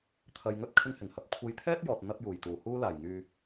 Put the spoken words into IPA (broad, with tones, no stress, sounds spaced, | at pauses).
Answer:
t̪ʰ ɐ˧ j ŋ ɵ˥ t̚ kʰ ɪ˧ ŋ h ɪ˨˩ ŋ h ɐ˨ p̚ kʷʰ e˧ j t̪ʰ ɛː˥ t̚ j ɔː˨ t̚ n̪ ɐ˧ p̚ j uː˨˩ j t̪ uː˨˩ h uː˧ l aː˨˩ j ŋ yː˨